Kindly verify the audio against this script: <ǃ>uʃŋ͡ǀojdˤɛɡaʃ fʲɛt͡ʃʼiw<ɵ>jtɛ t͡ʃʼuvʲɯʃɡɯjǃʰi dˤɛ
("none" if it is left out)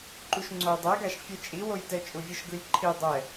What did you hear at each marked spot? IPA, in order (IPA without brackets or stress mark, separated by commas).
ǃ, o